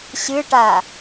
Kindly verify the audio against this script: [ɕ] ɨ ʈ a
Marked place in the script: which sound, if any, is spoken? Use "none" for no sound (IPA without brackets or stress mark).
ɕ